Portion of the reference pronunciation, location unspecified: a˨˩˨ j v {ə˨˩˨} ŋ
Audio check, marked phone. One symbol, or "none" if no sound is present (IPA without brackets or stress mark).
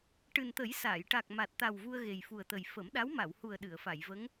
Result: ə˧˥